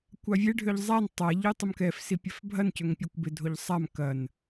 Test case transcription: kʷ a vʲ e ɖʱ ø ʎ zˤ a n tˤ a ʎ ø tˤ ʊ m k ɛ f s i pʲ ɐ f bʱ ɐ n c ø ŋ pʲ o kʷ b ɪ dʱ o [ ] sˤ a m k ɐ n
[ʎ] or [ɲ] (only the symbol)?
ʎ